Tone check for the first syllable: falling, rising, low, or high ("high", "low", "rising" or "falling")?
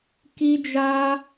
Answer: high